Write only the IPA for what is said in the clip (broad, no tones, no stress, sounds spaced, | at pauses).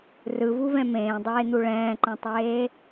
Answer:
r ɯ v u v ɛ̃ m ẽː dˤ eː n̪ u ɭ ɛ̃ː ǃ ɛ̃ tˤ eː